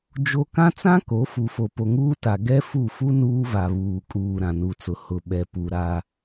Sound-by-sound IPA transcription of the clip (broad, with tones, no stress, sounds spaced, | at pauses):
d͡ʒ o˦ k ã˦ t͡s ã˦ k o˨˦ f u˨ f o˨ p o˨ ŋ uː˦ t a˨ ɡ ɛ˦ f u˦˨ f u˦ n uː˦ v a˨ β uː˨ kʼ uː˨ ɾ ã˨ n u˨ t͡s ʊ˨ h ʊ˨ ɓ ɛ˨ p u˨ ɾ a˦